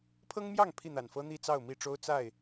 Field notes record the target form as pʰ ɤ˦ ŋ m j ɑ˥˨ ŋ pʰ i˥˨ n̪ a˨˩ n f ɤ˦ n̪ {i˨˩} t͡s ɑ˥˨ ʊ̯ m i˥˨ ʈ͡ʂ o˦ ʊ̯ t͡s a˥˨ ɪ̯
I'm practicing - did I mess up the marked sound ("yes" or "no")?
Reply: yes